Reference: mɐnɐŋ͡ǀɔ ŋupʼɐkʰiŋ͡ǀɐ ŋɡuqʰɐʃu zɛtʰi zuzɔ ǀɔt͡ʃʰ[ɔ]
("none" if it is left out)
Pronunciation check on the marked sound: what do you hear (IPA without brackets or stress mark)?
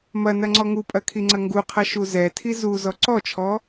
ɔ